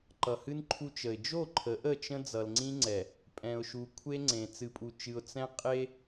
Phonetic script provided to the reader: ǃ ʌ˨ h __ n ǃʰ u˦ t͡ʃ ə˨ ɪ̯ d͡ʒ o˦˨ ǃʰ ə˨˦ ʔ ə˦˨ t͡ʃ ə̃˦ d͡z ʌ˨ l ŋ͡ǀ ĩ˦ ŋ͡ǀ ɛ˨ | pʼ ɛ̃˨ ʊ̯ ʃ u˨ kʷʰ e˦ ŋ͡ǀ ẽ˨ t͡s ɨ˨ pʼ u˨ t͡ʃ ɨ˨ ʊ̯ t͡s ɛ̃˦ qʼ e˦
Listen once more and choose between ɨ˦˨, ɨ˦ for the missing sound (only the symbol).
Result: ɨ˦